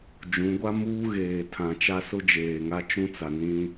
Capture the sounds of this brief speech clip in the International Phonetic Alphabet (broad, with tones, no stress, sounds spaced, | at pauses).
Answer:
d͡ʒ ũ˨˦ ɡʷ a˦ m uː˦ ɣ eː˨ tʰ ã˨ t͡ʃ a˦ s ʊ˦ d͡ʒ eː˨ ŋ a˦ t͡ʃ ũ˦ t͡s a˨ n ĩ˦